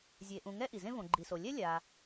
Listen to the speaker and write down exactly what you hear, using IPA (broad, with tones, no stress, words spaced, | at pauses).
zʲe˨ʔũ˨ ŋɛ˦ʔi˩zẽ˦ võ˨ɡ͡ǃi˨so˨ lʲɛ˦lʲa˨